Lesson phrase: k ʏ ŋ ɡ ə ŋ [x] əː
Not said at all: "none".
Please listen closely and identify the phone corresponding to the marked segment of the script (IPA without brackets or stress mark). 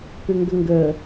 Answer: ɡ